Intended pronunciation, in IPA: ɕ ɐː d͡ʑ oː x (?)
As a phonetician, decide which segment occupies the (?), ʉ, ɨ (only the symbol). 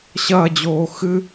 ɨ